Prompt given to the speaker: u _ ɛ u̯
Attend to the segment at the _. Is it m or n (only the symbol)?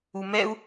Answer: m